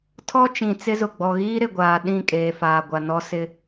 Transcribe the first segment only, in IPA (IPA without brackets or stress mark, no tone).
tʰ